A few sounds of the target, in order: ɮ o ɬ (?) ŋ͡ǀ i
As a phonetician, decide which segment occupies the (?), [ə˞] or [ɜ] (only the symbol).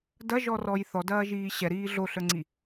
ə˞